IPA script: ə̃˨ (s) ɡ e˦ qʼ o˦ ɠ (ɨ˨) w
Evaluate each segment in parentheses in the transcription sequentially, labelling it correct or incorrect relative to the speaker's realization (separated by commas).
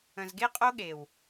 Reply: incorrect, incorrect